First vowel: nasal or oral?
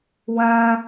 nasal